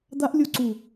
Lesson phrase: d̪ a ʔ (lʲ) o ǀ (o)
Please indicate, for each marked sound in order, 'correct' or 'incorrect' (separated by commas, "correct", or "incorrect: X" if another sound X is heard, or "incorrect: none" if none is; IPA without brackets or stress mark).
correct, incorrect: u